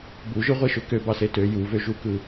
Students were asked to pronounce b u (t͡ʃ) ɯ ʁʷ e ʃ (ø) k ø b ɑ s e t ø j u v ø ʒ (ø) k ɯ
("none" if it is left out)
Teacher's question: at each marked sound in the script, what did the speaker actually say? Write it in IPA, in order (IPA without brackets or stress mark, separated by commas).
ʒ, ø, u